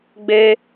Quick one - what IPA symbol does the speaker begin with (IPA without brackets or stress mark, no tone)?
ɡ͡b